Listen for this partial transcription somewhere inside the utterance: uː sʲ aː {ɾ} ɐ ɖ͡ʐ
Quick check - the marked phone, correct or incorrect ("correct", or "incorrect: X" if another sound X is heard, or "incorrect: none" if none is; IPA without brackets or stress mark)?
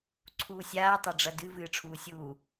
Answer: incorrect: tˤ